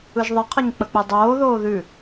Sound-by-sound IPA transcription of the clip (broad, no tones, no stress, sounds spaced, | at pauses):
ɯ ʒ ðˤ ɪ qʰ ə ɲ k͡p ə k͡p ɯ dˤ oː ð oː ð ʉ